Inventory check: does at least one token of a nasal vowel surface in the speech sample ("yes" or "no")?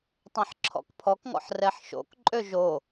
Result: yes